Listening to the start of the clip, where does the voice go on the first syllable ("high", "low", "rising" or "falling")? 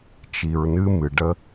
low